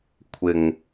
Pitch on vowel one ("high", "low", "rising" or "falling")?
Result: low